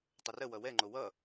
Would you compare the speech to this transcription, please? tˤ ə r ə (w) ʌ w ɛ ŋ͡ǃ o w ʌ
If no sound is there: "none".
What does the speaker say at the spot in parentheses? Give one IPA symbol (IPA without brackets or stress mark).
w